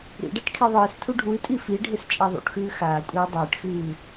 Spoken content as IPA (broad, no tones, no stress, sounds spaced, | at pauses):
ɾ ḭ ɖ a ʈ kʰ i ðˤ ɨː s tʰ u ɖʱ u i̯ tʼ i f i ɖʱ e s t͡ʃʼ a ðˤ ṵ ʈ x ʉː x aː kʷʼ eː dˤ eː ʈ x ɨː